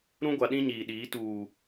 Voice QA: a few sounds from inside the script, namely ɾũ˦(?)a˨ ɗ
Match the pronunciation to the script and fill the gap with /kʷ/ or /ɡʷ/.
ɡʷ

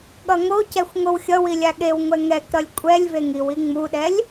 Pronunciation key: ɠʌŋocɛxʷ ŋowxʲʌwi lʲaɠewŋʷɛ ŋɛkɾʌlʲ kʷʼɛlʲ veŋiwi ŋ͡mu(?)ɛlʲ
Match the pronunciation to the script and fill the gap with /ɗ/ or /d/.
ɗ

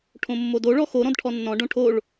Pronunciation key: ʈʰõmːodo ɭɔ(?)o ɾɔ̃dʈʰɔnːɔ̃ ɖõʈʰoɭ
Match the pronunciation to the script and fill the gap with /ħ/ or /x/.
x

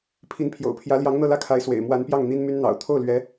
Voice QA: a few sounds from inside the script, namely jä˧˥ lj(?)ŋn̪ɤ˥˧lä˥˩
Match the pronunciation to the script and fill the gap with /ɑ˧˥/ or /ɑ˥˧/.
ɑ˧˥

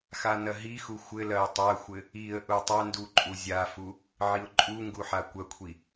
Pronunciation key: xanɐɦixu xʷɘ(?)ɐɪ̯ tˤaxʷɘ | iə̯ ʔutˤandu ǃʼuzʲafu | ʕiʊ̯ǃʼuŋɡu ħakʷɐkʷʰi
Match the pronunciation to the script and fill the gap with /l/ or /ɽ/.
l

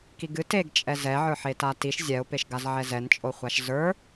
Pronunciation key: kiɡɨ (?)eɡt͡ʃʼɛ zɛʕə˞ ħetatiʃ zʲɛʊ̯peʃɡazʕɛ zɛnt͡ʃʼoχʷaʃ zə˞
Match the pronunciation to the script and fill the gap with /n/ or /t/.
t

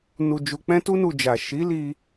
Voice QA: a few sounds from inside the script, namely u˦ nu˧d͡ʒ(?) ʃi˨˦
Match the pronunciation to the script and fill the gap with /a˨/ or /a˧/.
a˨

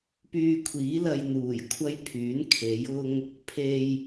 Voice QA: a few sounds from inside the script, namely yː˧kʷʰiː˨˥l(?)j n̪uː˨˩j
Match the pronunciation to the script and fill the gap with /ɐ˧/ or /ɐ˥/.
ɐ˧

